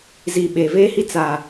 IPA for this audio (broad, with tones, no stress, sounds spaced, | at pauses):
z iː˨ ɓ eː˨ v eː˦ h i˦ t͡s a˨